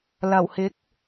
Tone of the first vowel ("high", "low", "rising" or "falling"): low